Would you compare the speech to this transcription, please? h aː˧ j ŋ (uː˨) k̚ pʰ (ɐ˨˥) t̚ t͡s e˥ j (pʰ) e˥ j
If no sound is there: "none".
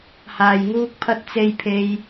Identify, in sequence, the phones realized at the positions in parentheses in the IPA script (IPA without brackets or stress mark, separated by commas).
uː˥, ɐ˥, pʰ